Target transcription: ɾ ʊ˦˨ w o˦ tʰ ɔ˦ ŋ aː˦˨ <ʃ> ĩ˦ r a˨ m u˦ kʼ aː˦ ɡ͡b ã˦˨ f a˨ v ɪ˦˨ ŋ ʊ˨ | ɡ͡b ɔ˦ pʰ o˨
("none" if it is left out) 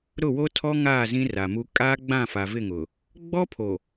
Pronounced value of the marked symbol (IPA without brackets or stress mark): z